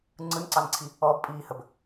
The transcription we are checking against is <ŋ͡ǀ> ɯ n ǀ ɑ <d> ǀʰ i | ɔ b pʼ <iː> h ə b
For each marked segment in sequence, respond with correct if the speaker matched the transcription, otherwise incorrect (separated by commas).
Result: correct, incorrect, correct